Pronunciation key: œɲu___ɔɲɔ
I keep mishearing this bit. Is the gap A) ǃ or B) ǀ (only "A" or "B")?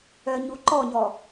A